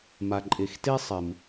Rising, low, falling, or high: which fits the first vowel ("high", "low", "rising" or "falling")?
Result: low